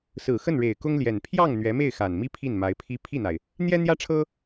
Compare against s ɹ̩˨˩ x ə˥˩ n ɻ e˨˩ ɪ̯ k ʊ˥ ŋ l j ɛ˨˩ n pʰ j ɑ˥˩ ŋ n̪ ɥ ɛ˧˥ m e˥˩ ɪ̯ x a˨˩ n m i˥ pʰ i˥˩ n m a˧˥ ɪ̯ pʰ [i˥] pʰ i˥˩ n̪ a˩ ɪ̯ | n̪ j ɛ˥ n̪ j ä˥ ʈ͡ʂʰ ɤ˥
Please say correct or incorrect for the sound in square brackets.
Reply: correct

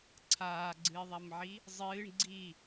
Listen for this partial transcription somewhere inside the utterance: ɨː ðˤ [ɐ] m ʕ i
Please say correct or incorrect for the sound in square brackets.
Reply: correct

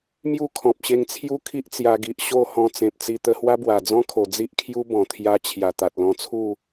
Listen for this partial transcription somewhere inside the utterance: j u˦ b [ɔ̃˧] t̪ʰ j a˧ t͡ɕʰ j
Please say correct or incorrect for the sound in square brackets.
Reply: incorrect: ɔ̃˨˩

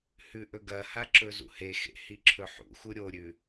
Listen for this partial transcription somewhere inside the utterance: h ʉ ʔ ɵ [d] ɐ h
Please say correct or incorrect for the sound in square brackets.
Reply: incorrect: ɡ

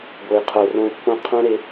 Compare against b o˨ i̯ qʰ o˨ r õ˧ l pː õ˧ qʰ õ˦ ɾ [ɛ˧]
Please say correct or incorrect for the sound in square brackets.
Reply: incorrect: e˧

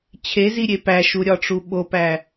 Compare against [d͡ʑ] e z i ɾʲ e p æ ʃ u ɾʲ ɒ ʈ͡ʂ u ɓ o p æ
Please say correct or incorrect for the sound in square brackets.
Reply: incorrect: t͡ɕʰ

